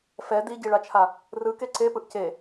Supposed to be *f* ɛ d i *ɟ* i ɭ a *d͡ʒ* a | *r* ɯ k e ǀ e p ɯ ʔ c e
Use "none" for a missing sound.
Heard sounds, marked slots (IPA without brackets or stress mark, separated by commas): f, ɟ, t͡ʃʰ, r